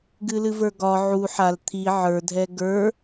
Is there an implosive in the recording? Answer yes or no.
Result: no